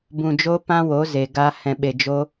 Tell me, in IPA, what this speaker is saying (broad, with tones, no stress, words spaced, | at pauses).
bũ˨d͡ʒo˧ pã˦wo˨˦ze˨ɡa˧ hɛ̃˨ɓe˨ d͡ʒo˧